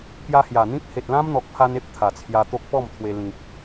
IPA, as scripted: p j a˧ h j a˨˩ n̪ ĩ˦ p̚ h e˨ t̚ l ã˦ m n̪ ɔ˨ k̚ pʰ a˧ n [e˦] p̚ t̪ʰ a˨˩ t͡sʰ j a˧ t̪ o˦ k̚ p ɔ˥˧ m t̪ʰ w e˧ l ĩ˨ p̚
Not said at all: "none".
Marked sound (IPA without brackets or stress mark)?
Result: e˦